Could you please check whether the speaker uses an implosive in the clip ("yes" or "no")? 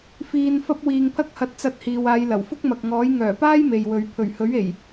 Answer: no